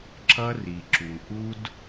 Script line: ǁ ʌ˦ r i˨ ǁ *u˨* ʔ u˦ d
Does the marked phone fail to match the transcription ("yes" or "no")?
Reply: no